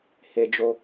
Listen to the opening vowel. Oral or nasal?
oral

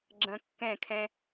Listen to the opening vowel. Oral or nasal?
nasal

